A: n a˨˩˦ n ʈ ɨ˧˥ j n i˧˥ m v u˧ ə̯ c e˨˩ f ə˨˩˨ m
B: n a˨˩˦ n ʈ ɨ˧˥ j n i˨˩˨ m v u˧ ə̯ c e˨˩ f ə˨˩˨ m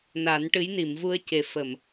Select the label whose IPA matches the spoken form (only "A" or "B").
B